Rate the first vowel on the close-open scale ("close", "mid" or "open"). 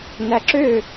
open